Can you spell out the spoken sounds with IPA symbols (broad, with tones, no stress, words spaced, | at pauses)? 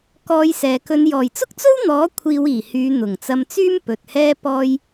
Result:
kɔː˧jsɛː˨kɵ˧n jɔː˨˩jt͡sʊ˥k̚t͡so˥wn̪ɔː˨˥ kʷʰiː˧wiː˨˩hyː˨˧ n̪ʊ˨˩ŋt͡sɐ˧mt͡syː˥mpɵ˨t̚ hɛː˧pɔː˧j